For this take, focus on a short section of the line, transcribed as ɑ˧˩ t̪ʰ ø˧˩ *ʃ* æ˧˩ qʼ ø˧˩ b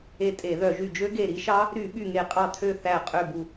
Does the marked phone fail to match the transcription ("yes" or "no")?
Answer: yes